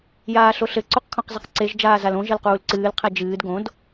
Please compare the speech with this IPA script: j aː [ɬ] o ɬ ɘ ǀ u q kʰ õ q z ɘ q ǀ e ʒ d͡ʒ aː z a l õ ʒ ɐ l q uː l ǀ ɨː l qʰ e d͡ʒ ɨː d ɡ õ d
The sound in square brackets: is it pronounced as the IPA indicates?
yes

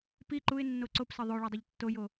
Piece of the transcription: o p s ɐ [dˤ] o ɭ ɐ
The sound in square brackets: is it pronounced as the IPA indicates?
no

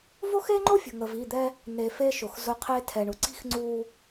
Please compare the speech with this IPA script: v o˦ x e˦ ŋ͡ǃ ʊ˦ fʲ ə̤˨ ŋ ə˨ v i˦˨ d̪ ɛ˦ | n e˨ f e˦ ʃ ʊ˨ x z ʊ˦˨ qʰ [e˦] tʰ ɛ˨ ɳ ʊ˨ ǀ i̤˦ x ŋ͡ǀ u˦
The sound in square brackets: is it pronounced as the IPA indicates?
yes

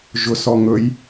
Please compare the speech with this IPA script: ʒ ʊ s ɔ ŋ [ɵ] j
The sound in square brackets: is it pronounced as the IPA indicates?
yes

